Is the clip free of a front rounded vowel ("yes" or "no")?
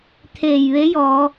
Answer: yes